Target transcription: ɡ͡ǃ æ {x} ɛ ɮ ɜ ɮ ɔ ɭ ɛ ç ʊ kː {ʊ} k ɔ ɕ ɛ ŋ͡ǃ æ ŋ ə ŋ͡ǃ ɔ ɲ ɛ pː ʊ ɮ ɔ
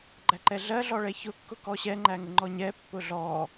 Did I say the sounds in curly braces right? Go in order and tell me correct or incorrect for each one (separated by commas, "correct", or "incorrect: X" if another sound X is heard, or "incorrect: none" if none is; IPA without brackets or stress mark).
incorrect: ǃ, correct